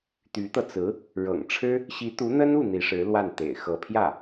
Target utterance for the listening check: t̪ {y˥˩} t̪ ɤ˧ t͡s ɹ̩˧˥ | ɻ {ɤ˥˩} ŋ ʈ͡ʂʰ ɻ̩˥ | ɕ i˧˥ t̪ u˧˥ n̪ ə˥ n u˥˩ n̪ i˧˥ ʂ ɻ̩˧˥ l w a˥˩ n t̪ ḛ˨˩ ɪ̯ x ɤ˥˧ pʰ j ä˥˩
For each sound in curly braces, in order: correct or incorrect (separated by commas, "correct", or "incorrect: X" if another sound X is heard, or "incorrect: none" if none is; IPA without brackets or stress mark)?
incorrect: y˧˥, incorrect: ɤ̰˨˩